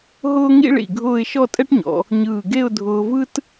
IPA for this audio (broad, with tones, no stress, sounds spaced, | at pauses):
ɦ ʊː˥ ŋ ḭ˥ ɭ ḭ˧˩ ɡʱ ʊː˥˧ ɪ̯ ʃ ɔ˥˧ tʼ ɛ˥ ʈ ɲ ɔ̰˩˧ | ɲ ɯː˧˩ ɡ e˥˧ ʊ̯ dʱ ʊː˧ v ɯ˥ t